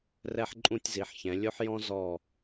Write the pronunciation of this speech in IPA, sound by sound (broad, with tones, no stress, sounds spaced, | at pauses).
r ɛ˥ ħ ǃʼ ũ˥˧ tʲ z i˩˧ ħ ç ɛ̃˩˧ lʲ o˥ ħ j ɔ̃˥ z ɔ˧˩